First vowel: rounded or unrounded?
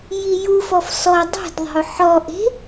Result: unrounded